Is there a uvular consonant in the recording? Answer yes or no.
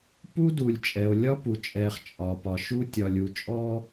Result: yes